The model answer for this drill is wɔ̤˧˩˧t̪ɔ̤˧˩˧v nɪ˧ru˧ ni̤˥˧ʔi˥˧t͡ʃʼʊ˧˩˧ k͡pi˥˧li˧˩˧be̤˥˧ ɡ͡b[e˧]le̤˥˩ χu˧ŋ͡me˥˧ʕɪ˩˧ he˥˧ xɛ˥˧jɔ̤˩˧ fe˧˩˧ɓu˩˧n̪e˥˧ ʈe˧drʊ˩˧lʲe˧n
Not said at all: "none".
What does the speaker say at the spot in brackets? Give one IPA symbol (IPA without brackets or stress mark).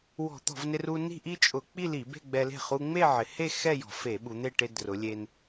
ɛ˧